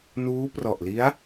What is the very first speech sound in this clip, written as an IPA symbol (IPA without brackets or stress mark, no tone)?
n